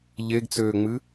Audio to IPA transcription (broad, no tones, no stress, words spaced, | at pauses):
ʎeɡt͡søːŋ͡mɨ